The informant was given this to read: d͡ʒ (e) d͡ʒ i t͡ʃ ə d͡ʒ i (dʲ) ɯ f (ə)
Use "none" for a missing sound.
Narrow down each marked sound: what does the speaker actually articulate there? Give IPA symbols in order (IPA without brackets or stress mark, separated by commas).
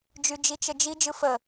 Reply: y, d͡ʒ, ə